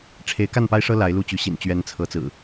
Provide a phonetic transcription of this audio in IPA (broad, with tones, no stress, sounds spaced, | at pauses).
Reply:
ʈ͡ʂʰ e˨˦ ɪ̯ k a˥˨ n p a˦ ɪ̯ ʂ ɤ˦ l a˨˦ ɪ̯ l u˨˦ t͡ɕ y˨˦ ɕ ḭ˨˩ n t͡ɕ ɥ ɛ˨˦ n t͡sʰ ɤ˨˦ t͡s ɹ̩˨˩